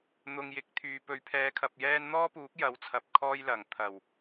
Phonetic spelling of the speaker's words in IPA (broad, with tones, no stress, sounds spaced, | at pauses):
n̪ ʊ˨ ŋ j ɪ˨˥ k̚ t̪ʰ yː˨ p ɵ˨˥ ɥ pʰ ɛː˨˧ kʰ ɐ˨ p̚ j ɛː˥ n n̪ ɔː˥ p uː˨˥ k̚ j ɐ˨˥ w t͡sʰ ɐ˨ p̚ kʰ ɔː˥ j l ɐ˨˩ ŋ t̪ʰ ɐ˨˩ w